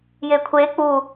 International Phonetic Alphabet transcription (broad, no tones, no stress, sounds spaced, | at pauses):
j e kʷʰ e k͡p u